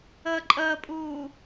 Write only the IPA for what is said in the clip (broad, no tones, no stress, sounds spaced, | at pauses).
əː ǃʼ əː pʼ uː